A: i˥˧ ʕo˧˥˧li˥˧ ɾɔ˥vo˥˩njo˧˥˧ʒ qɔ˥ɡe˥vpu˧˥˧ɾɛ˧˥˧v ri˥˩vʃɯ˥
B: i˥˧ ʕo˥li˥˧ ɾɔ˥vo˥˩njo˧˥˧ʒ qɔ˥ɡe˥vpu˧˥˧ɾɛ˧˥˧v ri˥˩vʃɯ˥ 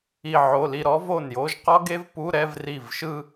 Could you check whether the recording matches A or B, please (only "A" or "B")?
A